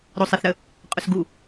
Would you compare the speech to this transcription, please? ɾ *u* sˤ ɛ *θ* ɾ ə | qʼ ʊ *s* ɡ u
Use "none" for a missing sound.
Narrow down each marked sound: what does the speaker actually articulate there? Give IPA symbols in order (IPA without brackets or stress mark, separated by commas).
o, θ, s